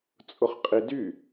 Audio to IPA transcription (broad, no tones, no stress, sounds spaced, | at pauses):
t͡sʼ ʊ χ qʼ i d y